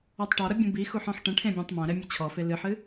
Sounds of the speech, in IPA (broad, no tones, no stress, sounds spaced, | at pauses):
ɔ tˤ ʈ ɔ ɾ ɐ bʲ ũ b i x u ħ ɔ̃ ħ ʈ ɐ̃ ʈʰ ẽ bʲ ã tˤ m ã ɾ ɛ mʲ ɘ t͡ɕʰ ɔ f e l ɨ ħ ɨ